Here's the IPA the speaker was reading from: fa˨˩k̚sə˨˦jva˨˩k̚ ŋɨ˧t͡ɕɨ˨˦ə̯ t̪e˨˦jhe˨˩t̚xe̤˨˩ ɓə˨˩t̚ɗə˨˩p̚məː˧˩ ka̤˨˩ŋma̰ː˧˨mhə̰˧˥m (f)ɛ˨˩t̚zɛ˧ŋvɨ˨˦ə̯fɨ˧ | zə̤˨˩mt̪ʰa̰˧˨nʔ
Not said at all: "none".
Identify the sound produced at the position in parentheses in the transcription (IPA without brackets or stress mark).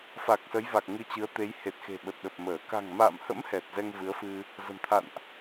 h